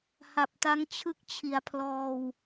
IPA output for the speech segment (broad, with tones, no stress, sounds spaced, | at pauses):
h a˨˩ p̚ t a˦˥ ŋ t͡ɕʰ ɯ˥˩ k̚ t͡ɕʰ i˩˦ a̯ pʰ l ɔː˧ w